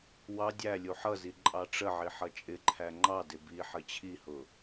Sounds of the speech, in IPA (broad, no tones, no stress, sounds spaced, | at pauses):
w ɑ dʲ æ lʲ u ħ ʌ z i ǃʼ ɑ ʈ͡ʂ ə ʕ i ħ ʌ t͡ʃʼ ɪ ǃʰ æ ŋ͡ǃ ɑ d ɪ b i ħ ə t͡ɕʰ i h ʊ